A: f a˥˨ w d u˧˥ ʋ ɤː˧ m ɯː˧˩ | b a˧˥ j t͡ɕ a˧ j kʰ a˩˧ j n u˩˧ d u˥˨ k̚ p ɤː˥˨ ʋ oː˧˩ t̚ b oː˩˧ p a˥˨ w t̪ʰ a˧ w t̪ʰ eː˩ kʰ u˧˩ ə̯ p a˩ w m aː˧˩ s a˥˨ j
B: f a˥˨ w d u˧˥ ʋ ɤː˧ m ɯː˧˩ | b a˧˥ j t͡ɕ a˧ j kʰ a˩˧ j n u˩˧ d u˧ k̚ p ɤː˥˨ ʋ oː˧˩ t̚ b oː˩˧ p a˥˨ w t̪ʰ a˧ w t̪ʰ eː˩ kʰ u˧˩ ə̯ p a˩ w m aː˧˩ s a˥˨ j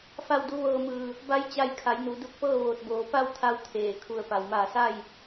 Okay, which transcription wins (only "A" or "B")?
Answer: B